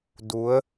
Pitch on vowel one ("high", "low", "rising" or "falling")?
rising